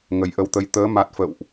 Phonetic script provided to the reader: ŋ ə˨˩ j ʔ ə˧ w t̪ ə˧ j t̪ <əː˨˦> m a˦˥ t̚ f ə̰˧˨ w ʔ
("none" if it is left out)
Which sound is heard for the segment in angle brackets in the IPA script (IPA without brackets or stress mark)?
əː˨˦